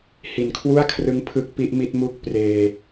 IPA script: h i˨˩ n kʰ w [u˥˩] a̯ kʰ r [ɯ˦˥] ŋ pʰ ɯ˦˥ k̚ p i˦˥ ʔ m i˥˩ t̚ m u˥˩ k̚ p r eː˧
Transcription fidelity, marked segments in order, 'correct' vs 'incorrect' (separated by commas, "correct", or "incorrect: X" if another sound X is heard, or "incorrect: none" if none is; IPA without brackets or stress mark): correct, correct